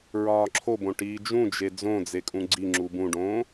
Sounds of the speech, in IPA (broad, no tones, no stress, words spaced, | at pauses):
ɹɒːǁʰobõ ʈiːd͡ʒũd͡ʒe d͡zõd͡zekʼũ ɡ͡ǀiŋ͡ǁu bũɖõː